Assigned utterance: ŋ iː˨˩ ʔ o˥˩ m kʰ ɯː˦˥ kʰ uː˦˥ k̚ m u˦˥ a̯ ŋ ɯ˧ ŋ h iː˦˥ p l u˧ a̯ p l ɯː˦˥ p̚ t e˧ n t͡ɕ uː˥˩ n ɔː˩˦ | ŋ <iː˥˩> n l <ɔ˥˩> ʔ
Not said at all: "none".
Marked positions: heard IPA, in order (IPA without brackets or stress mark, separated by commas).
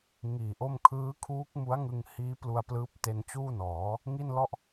i˥˩, ɔ˥˩